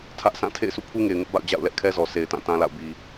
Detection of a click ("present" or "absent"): absent